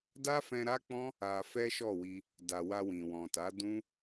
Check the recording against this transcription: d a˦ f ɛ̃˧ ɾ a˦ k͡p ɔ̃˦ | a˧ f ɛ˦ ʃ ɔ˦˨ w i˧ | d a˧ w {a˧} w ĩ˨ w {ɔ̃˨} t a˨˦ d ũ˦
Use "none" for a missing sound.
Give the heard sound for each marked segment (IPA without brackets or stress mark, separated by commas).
a˧, ɔ̃˨